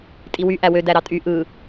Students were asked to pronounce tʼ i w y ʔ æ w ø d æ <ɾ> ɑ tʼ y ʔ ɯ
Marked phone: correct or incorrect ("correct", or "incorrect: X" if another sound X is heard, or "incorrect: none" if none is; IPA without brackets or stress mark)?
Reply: correct